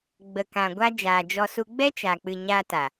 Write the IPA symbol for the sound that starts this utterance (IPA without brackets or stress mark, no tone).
ɡ͡b